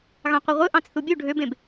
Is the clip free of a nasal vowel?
no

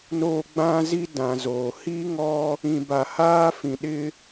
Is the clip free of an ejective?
yes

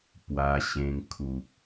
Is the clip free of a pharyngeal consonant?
yes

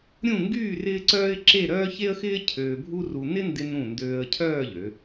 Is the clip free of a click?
no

